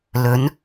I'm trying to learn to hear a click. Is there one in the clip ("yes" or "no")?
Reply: no